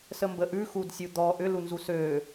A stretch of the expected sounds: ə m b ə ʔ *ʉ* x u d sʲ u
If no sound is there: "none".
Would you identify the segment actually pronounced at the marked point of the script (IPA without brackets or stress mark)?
ʉ